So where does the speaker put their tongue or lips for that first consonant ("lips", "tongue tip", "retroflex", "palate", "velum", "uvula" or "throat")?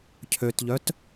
palate